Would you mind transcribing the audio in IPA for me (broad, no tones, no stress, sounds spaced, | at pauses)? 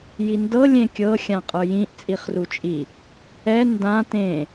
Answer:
j i n d ɤ lʲ ẽ kʲ ɤ xʲ ã qʼ ə˞ j ĩ ʔ t͡sʼ i χ r u t͡ʃʼ i | ɛ n d ã t ẽ